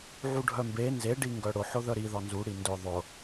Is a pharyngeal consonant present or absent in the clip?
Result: present